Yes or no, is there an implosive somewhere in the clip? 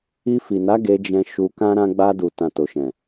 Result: no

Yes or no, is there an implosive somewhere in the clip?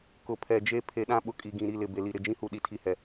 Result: yes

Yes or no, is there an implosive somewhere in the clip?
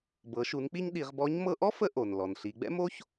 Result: yes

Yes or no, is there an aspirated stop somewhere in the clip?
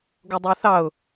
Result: no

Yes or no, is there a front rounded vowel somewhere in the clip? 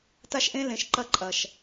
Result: no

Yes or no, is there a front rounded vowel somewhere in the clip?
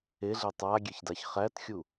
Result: no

